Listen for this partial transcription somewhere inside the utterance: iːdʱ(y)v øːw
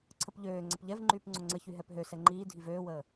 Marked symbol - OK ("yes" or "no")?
no